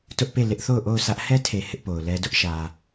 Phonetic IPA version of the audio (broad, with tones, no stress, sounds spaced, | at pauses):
t ʊ˦ ʔ p e˦˨ l ɪ˦ ʔ θ o˦˨ ʊ̯ ʔ o˦˨ ʊ̯ sʰ ä˦ ʔ h ɛ˦ tʰ e˨ h ɪ˦ ʔ p o˨ ʊ̯ l ɛ˦ d ʊ˦ ʔ ʃ ä˨